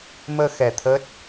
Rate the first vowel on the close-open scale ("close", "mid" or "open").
mid